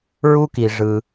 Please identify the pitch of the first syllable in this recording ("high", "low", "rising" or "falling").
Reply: high